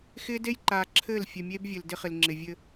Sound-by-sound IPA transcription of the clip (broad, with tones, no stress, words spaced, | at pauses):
xɪː˦de˦jǃaː˨ ǁʰɘː˦˨lfʲɘ˨mʲe˦b vʲɘ˨ldɪ˦χɪ˨lŋ͡ǁɪ˨ vʲɘ˦